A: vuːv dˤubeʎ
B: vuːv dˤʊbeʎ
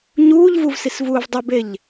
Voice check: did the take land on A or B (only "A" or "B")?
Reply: A